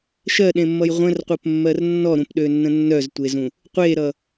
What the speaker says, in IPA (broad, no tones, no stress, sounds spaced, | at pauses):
ʃ ɜ ɗ ẽ mː ʌ j ʁʷ ə̃ r qʷ ɜ p mː ɜ r nː ɔ ɾ ũ p ɗ ø nː ə̃ nː œ z tʷ e z ũ | qʷ e ɾ ʌ